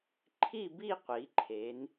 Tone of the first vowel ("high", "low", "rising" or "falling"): falling